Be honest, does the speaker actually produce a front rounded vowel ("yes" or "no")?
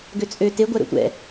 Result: yes